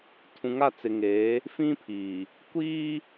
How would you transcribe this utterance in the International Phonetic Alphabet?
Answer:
tʰũ˨ŋa˦˨t͡sɪ˨ŋeː˨˦ | fĩ˦pʰiː˨ | kʷiː˦

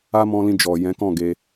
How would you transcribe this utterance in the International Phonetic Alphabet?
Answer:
a˦mɔ̃˧lĩ˧ d͡ʒɔ˨jɛ̃˨˦kɔ̃˦˨ɡe˧

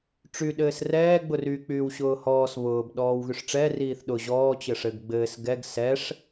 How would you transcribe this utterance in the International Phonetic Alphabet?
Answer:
ʈ͡ʂy ɗɘːsrɛː ɡ͡bʊry k͡pyːwɕʊːhɔːs βʊːb ɗɔːwɣyʂʈ͡ʂɛ riːθɗʊ ʑɔː t͡ɕɘʂɘɡ ɡ͡bɘːs ɡɛɡ sɛʂ

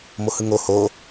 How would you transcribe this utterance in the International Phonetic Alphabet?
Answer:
mohɯŋo ho

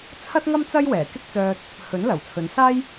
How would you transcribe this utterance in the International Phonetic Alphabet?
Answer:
t͡sʰɐ˥t̚ŋɐ˥m t͡sɐ˥jwɛː˨˩kɪ˥k̚t͡sœː˧t̚ | hɵ˨˥nlɐ˨˩wt͡sʰɵ˨˧n saː˥j

